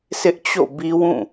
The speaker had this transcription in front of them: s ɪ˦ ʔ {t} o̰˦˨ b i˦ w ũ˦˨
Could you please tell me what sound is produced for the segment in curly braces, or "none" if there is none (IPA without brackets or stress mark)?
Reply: t͡ɕ